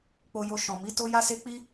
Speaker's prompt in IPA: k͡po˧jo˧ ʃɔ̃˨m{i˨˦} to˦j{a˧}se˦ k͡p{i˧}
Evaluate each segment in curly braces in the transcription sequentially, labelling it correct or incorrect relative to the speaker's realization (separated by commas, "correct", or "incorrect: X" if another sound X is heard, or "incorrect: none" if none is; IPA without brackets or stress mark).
correct, incorrect: a˦, incorrect: i˦